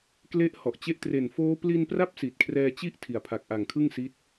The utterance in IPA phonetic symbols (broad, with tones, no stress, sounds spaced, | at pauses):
k l e˦˥ ʔ h ɔ˨˩ ʔ t͡ɕ e˦˥ ʔ t r e˨˩ n f oː˦˥ p l i˧ n p r a˦˥ p̚ s i˨˩ t̚ kʰ r ɛː˧ t͡ɕ i˥˩ ʔ tʰ i˨˩ a̯ pʰ a˨˩ k̚ ʔ a˨˩ ŋ kʰ ɯ˥˩ ŋ s i˦˥ t̚